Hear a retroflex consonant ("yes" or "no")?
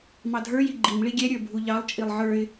yes